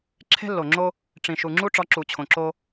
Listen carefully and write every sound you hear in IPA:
ǁʰ e̤˦ lː o˨ ŋ͡ǁ o˦ | ʈ͡ʂ ĩ˨ ʃ u˨ ŋ͡ǁ u˦ ʈ͡ʂ ɒ˨˦ ǁ u˨ t͡ɕʰ õ˨ ǁ o˦

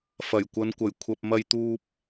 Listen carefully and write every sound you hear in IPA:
f ɐ˨˩ j kʷ ɐ˨˧ n kʷ ɐ˨˩ j kʷʰ ɐ˨ p̚ m ɐ˧ j t̪ uː˧ p̚

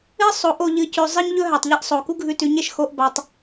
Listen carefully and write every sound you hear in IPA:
ɨ˦ sˤ o˨˦ ʔ o˨ ʎ ɨ˨ c ʉ˨ zˤ ɨ˧ ɲ ʎ ɵ˦ ɦ a˨ tˤ ʎ e˦ ʔ sˤ o˨ k u˦ ɡʱ ʉ˧ t ʉ˨˦ ɲ e˨ ʃ x o˦ ʔ b a˧ tˤ

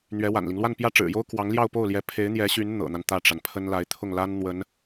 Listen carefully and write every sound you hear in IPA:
n̪ ɥ ɛ˧˥ w a̰˨˩ n l i˦ ŋ l w a˥˧ n p j ä˥˩ ʈ͡ʂ ɻ̩˨˩ j o˥ ʊ̯ k w ɑ˧˥ ŋ l j ɑ˥˧ ʊ̯ p o˥˩ ʊ̯ l j ɛ˧˥ pʰ e˧˥ ɪ̯ n̪ j ɛ˧˥ ɕ y˧˥ n n̪ ɤ̰˨˩ n̪ a˦ n t̪ ä˥˩ ʈ͡ʂ a˩ n pʰ ə˥ n l a˧˥ ɪ̯ t̪ʰ ʊ˥˩ ŋ l a˥ n n̪ w ə˧˥ n

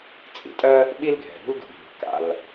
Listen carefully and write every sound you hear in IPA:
t͡sʼ ḭ˩ tʼ ɜ˥ | ɓ i˥ l ɡʱ ɛ̤˩ ɾ ṳ˥ l d ṳ˩ bʱ i̤˩ k a̰˩ l

